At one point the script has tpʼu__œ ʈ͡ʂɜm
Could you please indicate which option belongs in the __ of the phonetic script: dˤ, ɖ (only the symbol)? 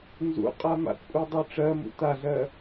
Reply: dˤ